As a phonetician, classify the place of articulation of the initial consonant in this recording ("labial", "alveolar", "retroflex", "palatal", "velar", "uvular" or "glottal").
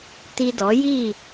alveolar